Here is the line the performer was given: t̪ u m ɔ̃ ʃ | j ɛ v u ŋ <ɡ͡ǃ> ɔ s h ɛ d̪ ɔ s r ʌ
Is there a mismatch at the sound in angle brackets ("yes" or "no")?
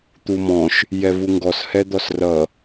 yes